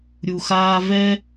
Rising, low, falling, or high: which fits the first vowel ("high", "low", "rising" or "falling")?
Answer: low